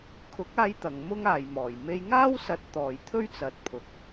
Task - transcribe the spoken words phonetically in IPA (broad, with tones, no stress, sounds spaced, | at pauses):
kʰ ʊ˨˥ k̚ aː˧ j t̪ ɐ˨ ŋ m ʊ˥ ŋ aː˨ j m ɔː˨˩ j m e˧ j ŋ aː˥ w s ɐ˨˥ t̚ t̪ ɔː˨ j t̪ʰ ɵ˥ ɥ t͡s ɐ˨ t̚ pʰ ʊ˨ k̚